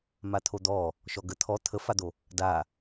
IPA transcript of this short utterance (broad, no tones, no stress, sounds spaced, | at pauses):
m a t̪ʰ o d̪ ɔ | ʃ ɔ ɡ ə t̪ʰ ɔ t̪ʰ ə f a d̪ o | d a